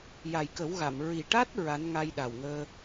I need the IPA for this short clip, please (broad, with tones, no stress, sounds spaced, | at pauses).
j a˨˩ j k ə˨˩˦ w ɣ a˨˩˨ m ɹ i˨˩ ʈ a˦˥ t̚ ɹ a˧˥ n ŋ a˧ j ɗ a˨˩ w ŋ əː˧